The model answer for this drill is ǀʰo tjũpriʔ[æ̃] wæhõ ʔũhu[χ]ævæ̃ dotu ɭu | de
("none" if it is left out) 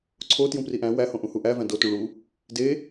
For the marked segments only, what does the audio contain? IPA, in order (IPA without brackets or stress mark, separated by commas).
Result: æ̃, ʔ